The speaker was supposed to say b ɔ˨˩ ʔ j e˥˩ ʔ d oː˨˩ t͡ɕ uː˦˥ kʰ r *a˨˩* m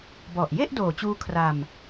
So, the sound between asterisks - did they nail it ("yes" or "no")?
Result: no